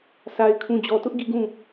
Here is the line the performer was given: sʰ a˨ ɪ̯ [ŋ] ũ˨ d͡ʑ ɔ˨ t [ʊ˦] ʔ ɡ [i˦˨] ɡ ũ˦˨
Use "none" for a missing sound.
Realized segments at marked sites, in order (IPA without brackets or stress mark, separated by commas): kʰ, ʊ˦, i˦˨